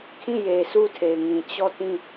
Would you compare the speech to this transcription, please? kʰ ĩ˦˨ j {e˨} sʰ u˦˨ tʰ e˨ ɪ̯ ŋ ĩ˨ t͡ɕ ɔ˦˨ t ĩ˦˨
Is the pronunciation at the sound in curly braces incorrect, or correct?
correct